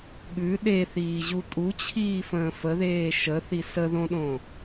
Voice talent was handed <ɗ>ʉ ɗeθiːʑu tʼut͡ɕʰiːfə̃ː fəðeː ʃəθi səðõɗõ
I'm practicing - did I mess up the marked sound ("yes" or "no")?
yes